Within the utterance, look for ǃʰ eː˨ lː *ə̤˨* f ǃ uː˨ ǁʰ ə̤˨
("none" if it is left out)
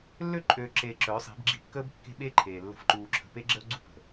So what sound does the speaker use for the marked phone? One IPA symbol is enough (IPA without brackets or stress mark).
ə̤˨